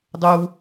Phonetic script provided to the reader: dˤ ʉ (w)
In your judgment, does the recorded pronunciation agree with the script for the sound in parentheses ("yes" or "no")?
yes